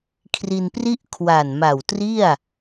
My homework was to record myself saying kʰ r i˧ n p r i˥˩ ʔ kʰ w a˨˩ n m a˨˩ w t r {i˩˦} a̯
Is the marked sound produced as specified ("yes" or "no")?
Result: no